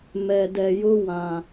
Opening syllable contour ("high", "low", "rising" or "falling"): low